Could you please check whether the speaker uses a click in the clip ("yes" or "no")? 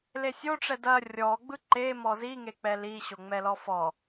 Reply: yes